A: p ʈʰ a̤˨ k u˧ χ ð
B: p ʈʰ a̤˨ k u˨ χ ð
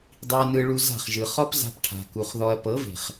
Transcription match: B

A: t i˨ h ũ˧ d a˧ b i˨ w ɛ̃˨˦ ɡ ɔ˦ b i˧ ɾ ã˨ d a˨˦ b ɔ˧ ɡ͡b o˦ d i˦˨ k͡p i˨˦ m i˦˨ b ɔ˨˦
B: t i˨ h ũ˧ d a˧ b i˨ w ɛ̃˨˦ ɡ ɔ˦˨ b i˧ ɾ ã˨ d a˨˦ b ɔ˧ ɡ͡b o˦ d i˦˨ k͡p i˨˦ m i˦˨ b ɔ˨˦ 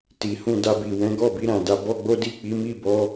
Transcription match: B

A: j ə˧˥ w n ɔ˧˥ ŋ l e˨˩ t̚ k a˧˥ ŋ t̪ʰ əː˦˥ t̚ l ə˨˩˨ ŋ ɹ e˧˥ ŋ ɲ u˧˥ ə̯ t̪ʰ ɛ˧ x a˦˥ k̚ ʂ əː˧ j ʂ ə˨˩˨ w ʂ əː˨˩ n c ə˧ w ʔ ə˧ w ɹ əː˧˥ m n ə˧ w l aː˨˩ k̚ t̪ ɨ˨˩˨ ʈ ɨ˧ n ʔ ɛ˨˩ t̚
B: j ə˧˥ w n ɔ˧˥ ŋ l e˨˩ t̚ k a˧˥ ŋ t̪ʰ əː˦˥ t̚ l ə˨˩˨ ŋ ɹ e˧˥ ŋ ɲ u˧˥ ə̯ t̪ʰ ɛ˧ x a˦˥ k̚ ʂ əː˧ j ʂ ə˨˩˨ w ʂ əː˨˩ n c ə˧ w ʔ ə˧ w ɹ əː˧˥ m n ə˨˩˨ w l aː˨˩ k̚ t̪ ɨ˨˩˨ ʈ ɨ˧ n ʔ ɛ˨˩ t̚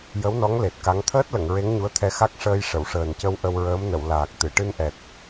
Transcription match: B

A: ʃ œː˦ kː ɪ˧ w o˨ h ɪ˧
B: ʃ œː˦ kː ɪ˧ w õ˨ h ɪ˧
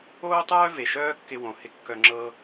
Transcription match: B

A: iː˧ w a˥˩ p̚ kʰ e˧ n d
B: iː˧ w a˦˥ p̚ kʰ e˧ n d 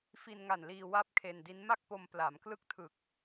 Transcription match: A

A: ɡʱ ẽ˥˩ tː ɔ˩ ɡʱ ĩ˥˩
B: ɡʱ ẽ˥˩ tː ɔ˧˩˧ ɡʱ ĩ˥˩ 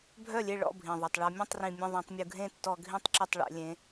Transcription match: B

